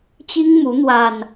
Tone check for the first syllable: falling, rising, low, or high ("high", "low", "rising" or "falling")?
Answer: high